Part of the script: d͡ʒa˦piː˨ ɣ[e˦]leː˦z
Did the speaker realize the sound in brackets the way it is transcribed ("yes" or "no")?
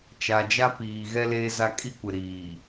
no